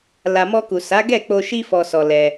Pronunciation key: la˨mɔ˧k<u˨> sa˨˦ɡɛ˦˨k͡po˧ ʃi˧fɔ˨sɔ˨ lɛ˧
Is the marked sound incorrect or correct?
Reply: correct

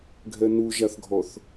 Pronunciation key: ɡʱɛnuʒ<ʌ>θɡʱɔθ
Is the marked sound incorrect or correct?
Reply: incorrect: a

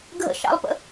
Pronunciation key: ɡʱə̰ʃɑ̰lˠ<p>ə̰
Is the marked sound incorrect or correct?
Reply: correct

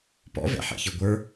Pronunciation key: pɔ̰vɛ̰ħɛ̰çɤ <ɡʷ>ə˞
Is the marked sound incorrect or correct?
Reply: correct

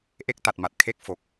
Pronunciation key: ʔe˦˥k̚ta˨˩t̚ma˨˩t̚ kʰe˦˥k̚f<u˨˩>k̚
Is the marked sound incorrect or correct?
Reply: incorrect: o˨˩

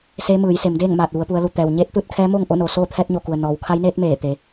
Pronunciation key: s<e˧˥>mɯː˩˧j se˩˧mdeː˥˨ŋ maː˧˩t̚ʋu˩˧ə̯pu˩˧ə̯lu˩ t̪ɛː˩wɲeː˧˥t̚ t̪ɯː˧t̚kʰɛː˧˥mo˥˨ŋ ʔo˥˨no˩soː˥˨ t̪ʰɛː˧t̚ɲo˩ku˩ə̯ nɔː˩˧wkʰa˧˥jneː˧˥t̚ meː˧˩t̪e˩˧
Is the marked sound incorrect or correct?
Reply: incorrect: eː˧˥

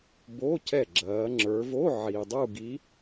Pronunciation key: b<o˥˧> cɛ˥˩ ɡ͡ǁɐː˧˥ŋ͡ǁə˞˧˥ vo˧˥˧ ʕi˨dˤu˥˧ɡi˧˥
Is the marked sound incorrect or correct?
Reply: incorrect: o˧˥˧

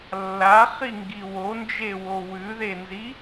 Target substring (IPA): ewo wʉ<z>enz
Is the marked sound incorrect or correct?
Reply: incorrect: ð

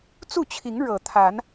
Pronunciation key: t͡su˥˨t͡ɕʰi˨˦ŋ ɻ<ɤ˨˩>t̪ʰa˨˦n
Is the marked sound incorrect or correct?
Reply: correct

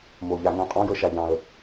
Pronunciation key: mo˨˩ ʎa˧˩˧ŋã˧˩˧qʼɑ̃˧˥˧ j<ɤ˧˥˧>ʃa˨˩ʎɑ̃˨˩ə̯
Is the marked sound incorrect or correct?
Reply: incorrect: ɤ˦˨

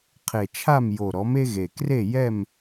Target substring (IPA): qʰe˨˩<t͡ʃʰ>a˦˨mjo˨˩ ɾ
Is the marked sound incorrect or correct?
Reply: correct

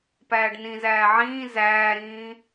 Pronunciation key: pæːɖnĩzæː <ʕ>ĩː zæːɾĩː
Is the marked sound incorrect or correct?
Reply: correct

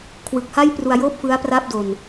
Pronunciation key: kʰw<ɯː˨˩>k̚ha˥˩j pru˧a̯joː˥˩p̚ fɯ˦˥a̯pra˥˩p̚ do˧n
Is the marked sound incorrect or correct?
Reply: incorrect: ɯ˨˩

